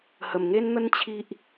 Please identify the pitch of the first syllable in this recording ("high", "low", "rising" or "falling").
low